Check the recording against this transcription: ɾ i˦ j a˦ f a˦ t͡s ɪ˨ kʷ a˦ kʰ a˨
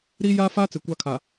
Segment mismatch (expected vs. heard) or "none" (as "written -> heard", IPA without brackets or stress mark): none